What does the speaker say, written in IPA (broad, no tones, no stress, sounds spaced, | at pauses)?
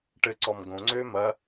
ʈ ɘ ǀ ɔ m ɡ õ ŋ͡ǀ øː m ɐ